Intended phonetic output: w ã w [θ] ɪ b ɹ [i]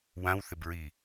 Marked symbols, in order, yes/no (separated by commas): yes, yes